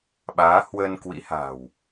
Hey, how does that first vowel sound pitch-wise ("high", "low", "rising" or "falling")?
rising